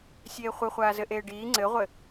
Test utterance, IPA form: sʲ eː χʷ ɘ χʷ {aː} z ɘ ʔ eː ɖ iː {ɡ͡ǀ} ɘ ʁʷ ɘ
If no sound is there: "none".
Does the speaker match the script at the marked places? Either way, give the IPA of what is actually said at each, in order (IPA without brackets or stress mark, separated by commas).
aː, ŋ͡ǀ